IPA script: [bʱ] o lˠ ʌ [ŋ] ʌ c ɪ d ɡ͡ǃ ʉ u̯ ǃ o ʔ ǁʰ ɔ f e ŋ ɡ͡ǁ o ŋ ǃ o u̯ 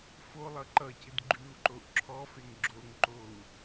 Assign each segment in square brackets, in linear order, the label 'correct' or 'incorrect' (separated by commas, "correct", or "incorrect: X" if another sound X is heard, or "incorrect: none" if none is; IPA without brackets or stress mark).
incorrect: f, incorrect: ǃ